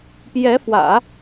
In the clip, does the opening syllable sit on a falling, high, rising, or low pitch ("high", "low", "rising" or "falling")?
rising